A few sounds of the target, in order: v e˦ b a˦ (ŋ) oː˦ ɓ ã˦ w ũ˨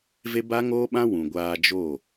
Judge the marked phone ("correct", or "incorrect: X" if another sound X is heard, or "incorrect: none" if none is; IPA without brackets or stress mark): correct